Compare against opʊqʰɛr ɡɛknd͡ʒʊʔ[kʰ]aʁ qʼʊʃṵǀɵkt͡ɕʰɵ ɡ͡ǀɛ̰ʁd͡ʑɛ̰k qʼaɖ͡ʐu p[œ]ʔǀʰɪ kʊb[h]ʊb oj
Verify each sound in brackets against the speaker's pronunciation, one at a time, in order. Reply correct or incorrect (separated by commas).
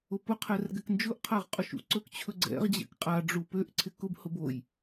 incorrect, incorrect, correct